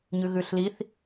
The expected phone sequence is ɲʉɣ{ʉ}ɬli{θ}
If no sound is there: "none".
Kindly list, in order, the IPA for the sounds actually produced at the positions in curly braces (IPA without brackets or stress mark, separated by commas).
ʉ, θ